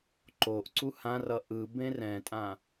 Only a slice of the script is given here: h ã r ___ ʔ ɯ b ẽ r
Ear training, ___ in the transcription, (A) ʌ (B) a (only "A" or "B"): A